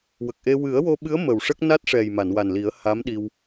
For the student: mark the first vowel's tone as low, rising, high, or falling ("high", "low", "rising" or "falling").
low